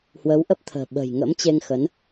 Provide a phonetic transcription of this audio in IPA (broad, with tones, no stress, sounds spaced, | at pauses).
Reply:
h w əː˨˦ w ʔ ə˦˥ p̚ t̪ʰ ə̤ː˨˩ ɓ ə̤ː˨˩ j ŋ ə̰˧˥ m t͡ɕ e˧ ŋ x ə˨˦ n